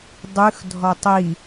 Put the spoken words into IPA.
dˤʉxdʱɔ tˤi

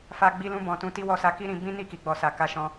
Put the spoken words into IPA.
fa˧ ɡ͡bi˧lũ˧ bɔ̃˨tũ˧ti˦ wɔ˧sa˧ki˦ ɾĩ˧ bĩ˦ ni˦˨ki˨ɡ͡bɔ˨sa˨ ka˧ʃɔ̃˧

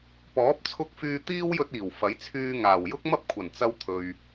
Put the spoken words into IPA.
pɔː˨˥p̚t͡sʰʊ˧k̚ fyː˧ t̪iː˥wjɵ˧t̚iː˨˩w fɐ˨˥jt͡sʰyː˧ŋaː˨˩w jʊ˥k̚mɐ˥p̚kʷʰɐ˨˩nt͡sɐ˧w t̪ʰɵ˨ɥ

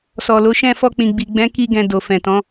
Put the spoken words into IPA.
sɔ˨lo˨˦ʃɛ̃˦˨ fɔ˧k͡pĩ˨ɡ͡bi˨ ɡ͡bɛ̃˨˦ ki˦ɡɛ̃˧ do˨fɛ̃˨tɔ̃˨˦

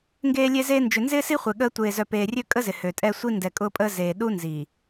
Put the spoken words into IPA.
ŋɡeː˦lʲe˦zeː˦ nd͡ʒʏ˨nzɪː˦si˦χʷe˨ ɠəː˦ tʷeː˨zœ˨peː˨ rʲø˦kʼə˦zɪ˨ høː˨tʼɛ˦ sʷi˦ndɛ˨ kʼʊː˦pʼəː˦ zeː˨ ɗu˦nzi˨

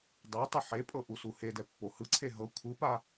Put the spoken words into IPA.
dˤe tˤɯħepʼɤ ʔusuhedɛ pːohɯǀʰe ɦɤ kʷʰɯpa

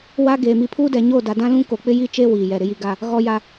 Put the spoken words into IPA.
wa˦ɡeː˨ mi˨pʰuː˦dɛ˨ɲoː˦˨ da˨dã˦lũ˦ ko˨k͡pɪ˦ji˦t͡ʃeː˦ wiː˨jɛ˨ ɾɪ˨ji˨ɡa˨ | ɣɔ˨ja˨

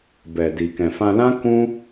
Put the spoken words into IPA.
bɛ˨di˨ kɛ̃˨fã˧ lã˦ kũ˦

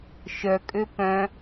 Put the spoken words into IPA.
ʃœkʼø pœ̃

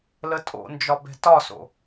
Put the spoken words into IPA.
lətʼo̰nd͡ʒɒ bɛ̤tɒso̰

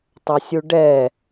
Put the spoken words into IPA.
tˤɐsʲuɖɛ

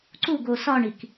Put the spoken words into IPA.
ǀuɡo sɒɳik

